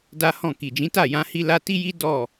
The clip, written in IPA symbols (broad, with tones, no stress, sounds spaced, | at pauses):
d a˦ h ɔ̃˦˨ k i˨ d͡ʒ ĩ˨˦ t a˦˨ j ã˧ h i˦ l a˧ t i˦ j i˦ d ɔ˦˨